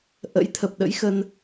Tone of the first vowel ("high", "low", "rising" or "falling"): rising